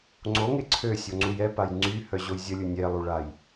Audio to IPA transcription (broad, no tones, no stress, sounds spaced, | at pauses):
ŋ͡ǀ o ŋ e ǀʰ ø sʲ o ŋ͡ǀ u j ɛ p a j ŋ͡ǀ y h œ ʑ o j zʲ ə lʲ u nʲ ɛ lˠ u ɭ a j